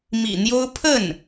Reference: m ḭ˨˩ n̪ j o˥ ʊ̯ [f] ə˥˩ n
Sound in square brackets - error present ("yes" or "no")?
yes